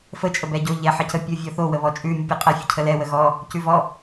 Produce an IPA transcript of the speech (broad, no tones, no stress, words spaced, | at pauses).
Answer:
fə t͡ʃʼəbɛɟo ʎɛħʌcə pʲovʲɔθo wəβɔt͡ʃʼʉ mʲʉpʲʉqʼɛ fʲəcʰəlɛ wəɣɔ | cʉvɔ